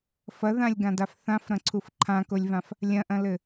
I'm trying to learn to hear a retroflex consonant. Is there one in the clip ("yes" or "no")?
no